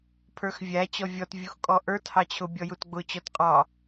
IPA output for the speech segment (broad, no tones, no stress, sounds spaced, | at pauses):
pʰ ə˞ x vʲ æ t͡ɕ ɔ vʲ ɔ t vʲ u x kʼ ɔ ʔ ə˞ t h ɑ t͡ɕʰ ʊ bʲ ɔ j u t ɡ͡b ʊ t͡ɕ ɔ t qʼ ɑ